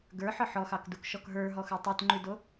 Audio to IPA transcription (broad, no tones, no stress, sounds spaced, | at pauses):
ɡ ə˞ ħ ɒ ħ ɔ x ɑ k d u k ʃ ɔ k ɦ ə˞ ɦ ɔ x ə˞ tˤ u t ŋ͡ǃ ʉ d o